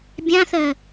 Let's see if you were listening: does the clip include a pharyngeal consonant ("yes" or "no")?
no